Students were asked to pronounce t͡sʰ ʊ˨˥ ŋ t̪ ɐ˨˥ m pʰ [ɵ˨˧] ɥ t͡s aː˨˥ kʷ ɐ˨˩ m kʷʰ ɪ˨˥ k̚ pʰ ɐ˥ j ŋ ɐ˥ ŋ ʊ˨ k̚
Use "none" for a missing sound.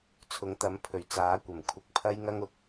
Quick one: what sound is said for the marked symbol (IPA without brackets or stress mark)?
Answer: ɵ˨˩